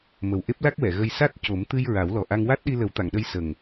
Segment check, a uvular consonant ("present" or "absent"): absent